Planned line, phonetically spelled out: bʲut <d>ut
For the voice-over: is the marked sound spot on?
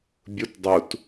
no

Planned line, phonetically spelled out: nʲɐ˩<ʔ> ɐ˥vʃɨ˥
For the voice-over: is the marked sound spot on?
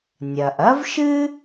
yes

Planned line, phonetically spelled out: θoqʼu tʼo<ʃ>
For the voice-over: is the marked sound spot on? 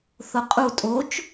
no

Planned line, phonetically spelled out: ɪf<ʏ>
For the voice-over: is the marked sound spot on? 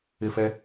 no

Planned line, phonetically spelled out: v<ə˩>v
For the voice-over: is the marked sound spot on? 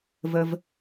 yes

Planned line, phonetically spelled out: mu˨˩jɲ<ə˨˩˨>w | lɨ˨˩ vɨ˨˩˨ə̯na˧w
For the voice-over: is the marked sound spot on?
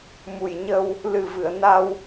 no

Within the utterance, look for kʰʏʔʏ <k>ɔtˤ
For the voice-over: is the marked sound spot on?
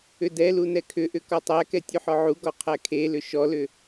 yes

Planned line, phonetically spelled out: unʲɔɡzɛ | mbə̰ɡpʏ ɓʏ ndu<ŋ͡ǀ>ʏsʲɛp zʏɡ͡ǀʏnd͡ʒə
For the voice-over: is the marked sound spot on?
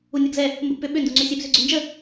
yes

